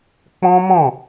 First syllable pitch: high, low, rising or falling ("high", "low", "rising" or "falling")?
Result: high